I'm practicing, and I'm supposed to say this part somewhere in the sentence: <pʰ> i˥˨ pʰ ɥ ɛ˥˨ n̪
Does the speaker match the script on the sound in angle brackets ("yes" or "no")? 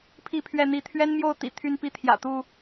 yes